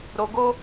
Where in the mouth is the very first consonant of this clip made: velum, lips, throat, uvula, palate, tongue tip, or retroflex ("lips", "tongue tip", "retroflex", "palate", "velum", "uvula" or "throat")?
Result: tongue tip